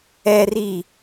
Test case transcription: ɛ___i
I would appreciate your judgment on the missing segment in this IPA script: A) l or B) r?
B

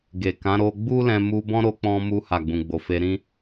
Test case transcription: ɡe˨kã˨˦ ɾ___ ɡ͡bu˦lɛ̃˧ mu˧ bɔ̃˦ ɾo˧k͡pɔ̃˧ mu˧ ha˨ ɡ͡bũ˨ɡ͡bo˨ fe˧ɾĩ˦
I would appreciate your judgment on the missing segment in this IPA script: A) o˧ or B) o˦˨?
A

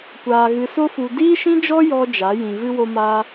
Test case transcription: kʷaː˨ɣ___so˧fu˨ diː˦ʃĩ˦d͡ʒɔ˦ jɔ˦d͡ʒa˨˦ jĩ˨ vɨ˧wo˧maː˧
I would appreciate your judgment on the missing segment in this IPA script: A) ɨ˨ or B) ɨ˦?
A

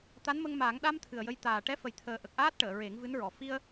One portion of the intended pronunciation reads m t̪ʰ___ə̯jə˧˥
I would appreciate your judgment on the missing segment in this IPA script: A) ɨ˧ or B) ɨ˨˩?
B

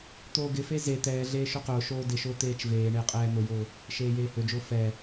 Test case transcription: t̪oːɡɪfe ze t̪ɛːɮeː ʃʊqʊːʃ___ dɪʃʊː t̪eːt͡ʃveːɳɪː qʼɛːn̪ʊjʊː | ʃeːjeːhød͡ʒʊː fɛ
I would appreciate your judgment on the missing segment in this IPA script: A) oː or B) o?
A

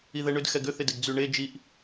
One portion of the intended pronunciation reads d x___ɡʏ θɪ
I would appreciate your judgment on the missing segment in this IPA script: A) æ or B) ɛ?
B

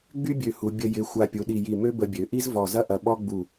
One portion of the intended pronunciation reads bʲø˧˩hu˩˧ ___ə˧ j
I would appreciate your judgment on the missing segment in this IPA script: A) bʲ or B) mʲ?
A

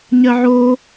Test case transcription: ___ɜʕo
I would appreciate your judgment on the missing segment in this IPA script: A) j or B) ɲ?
B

